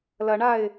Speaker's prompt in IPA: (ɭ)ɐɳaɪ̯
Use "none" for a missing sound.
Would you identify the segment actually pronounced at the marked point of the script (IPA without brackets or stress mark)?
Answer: l